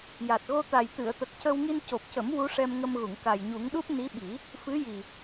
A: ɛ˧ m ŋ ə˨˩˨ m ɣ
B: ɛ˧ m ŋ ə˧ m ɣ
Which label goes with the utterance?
B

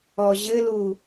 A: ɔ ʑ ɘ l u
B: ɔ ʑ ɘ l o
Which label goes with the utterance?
A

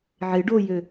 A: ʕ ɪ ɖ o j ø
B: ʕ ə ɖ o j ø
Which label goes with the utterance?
A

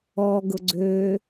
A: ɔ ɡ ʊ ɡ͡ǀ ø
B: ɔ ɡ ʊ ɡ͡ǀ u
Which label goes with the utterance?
A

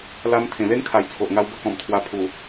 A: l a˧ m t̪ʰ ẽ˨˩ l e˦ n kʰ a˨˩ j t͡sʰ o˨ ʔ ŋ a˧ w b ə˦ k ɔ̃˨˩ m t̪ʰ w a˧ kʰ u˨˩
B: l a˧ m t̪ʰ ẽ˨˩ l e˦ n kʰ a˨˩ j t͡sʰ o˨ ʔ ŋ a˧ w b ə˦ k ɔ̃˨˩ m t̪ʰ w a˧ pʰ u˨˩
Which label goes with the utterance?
B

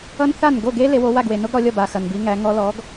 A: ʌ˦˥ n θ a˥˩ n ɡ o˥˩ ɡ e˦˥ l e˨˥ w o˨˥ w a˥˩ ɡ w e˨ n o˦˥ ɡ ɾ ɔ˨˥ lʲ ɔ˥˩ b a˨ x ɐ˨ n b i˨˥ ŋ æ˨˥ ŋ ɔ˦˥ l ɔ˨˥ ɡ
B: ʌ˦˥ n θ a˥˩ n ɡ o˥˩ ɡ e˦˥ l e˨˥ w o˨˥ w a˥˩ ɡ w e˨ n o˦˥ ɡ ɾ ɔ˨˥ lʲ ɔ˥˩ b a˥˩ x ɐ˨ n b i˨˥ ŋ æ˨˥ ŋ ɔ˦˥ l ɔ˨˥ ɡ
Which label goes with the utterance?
A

